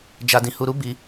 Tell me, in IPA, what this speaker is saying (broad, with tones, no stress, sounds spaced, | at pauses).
d͡ʒ a˧ d ĩ˧ h u˧ ɾ u˦ b i˦